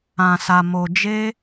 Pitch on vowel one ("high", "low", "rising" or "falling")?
low